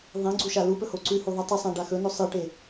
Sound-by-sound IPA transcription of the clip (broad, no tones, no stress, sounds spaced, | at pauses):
ðˤ ĩ ɡ͡ǀ u ʃ a l u p ɵ h o ǀ ʉ h u ðˤ i tˤ ɨ sˤ ã ɖ a x ɵ n ɵ sˤ ɨ ʈ e